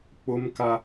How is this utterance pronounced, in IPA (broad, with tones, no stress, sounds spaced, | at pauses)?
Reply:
k͡p ʊ˦ m k a˦